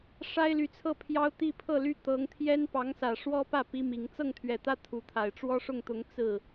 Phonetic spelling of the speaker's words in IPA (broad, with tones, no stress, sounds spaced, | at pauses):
ʂ a˥ ɪ̯ l y˧˥ t͡sʰ ɤ˥˩ pʰ j ɑ˥ ʊ̯ t̪ i˥˧ pʰ ɤ˥˧ l y˥˩ t̪ ɤ˧˥ ŋ t̪ʰ j ɛ˥ n p ɑ˧˥ ŋ s ä˨˩ ʂ w ɔ˥ p ä˥˩ p i˥ m i˧˥ ŋ t͡s ɤ˥˩ ŋ t̪ʰ ɥ ɛ˨˩ t̪ ä˥ t̪ʰ u˧˥ t̪ʰ a˨˩ ɪ̯ ʈ͡ʂ w ɔ˥ ʂ ʊ˥˩ ŋ t̪ ʊ˧˥ ŋ t͡s ɹ̩˥˩